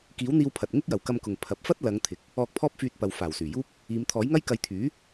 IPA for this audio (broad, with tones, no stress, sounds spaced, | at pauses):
k iː˨˥ w n̪ iː˧ w pʰ ɐ˨ t̚ ŋ ɪ˥ k̚ j ɐ˨˩ w k ɐ˧ m k ʊ˨˩ ŋ pʰ ɐ˨˥ p̚ f ɐ˥ t̚ l ɐ˨˧ ŋ t̪ʰ ɪ˨ k̚ | ɔː˧ k̚ pʰ ɔː˥ p̚ f yː˧ t̚ p ɐ˨ w f aː˨˩ w s yː˨˩ j uː˥ p̚ | iː˨˧ m t̪ʰ ɔː˨˥ j ŋ ɐ˥ j k ɐ˧ j t̪ʰ yː˨˥